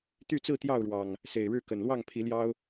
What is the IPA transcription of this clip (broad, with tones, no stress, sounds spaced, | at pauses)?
t̪ y˥˨ t͡s ɹ̩˥˨ t̪ j ɑ˥˨ ʊ̯ ɻ w ɑ˨˩ ŋ | s e˨˩ ɪ̯ ɻ ɻ̩˥˨ k ə˨˩ n l w ɑ˥˨ ŋ pʰ i˨˦ l j ɑ˦ ʊ̯